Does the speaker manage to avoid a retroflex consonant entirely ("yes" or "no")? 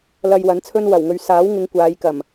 yes